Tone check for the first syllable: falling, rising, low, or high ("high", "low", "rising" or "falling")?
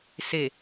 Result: low